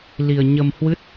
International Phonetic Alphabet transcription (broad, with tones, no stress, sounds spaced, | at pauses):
l i˧ ə̯ ɲ ə˧ m h w ɨ˦˥ t̚